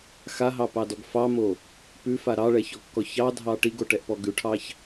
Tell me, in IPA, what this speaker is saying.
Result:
x a ɦ ɑ p ɑ d ɔ ɡ f ɑ m o | p ʉ f a ɾ ɑ ɭ ɛ ç ɔ kː ɔ ç ɑ dʱ ɑ ʈ i ɡ o ʈ ɛ ʔ p ɔ ɡ ʉ ʈʰ ɑ ç

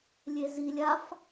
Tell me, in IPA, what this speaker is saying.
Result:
lʲ e z i lʲ a f

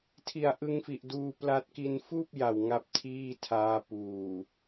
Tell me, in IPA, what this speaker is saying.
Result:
tʰ i˨˩ a̯ ʔ ɯ˧ ŋ f i˨˩ ʔ d uː˧ p l a˦˥ t̚ k i˧ n f uː˥˩ p̚ j a˨˩ w ŋ a˦˥ p̚ tʰ iː˥˩ tʰ aː˦˥ p uː˨˩

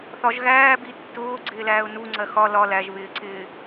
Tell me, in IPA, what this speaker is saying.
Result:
θ ɒ ʒ ɣ æː b i tː ʊː ɡ͡ǀ ɪː l æː ʊ̯ n u ŋ͡ǀ ɜ x ɒ l ɒ l æ ʒ β ɪː ǀ ɪː

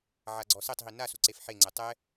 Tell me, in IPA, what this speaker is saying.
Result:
ʕ a ɡ͡ǀ ɔ s e tˤ ɦ i n a s u ǀ e f ħ e ŋ͡ǀ ɘ tˤ ɛ

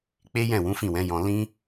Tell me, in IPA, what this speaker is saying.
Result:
k͡p e˦ j ɛ̃˦˨ w ũ˨˦ f ĩ˦˨ w ɛ̃˨˦ j ɔ̃˧ l ĩ˦

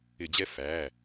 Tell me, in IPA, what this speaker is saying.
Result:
ɪ˧˩˧ d͡ʑ ɛ˦ f æ˩˧˩

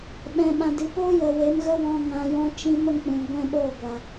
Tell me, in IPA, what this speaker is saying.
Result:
ɓ ɛ̃˨ ɓ ã˨ d ɨ˨ p oː˦ j ə˨ w e˨˦ m ɣ ə˦ w ɔ̃˧ ŋ ã˧ j ɔ̃˦ t͡ʃ ĩ˦ m ə˦ ŋ k͡p ũ˨ ɡʷ ɛ̃˦ ɓ oː˦˨ ɡʷ a˨

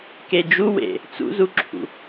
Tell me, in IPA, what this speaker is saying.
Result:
k e d͡ʒ u w ḛ | t͡s ṵ z u ǁʰ ṵ

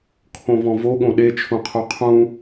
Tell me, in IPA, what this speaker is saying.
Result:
kʰ õ v ɔ̃ v o ɠ õ ɗ e t͡ʃʰ ũ qʰ o qʰ ũ

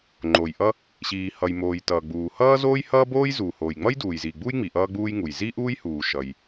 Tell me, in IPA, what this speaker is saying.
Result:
ŋ͡ǃ o˩ j ʔ ʌ˥ | ɕ iː˩ h ʌ˩ j m oː˩ j t ʌː˩ ɡ͡b uː˩ h ʌː˥ z oː˥ j h ʌː˥ b oː˥ j z uː˩ h oː˩ j ŋ͡m ʌ˥ j d uː˩ j z iː˩ ɡ͡b uː˥ j ŋ͡m i˩ ʔ ʌː˥ ɡ͡b uː˥ j ŋ u˩ j z i˥ ʔ uː˥ j h uː˩ ʃ ʌ˩ j

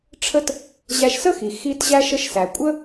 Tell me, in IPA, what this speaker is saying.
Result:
ʈ͡ʂʰ ə˥ t | ʑ æ˧ ʃ s ə˥ x i˩ x i˧ t ʑ æ˧ ʃ ə˧ ʃ s æ˩ kʷʼ ə˥

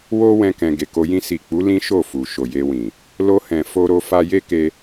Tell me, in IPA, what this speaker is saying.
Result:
w o˦ w ɛ̃˦ k ɛ̃˧ ɡ e˨ k o˧ j ĩ˧ s i˨ k͡p u˨˦ l ĩ˦ ʃ o˦˨ f u˨ ʃ o˨ j e˧ w ĩ˨ | l o˧ h ɛ̃˨ f o˧ ɾ o˧ f a˧ j e˦ k e˧

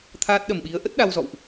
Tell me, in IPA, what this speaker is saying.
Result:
t̪ʰ aː˦˥ t̚ ɗ ə˨˩ m ɓ i˨˦ ə̯ ʔ ə˦˥ t̚ ɗ a˧ w z ɔ̰˧˨ w ʔ

